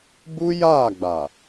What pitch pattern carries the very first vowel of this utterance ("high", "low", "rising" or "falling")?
high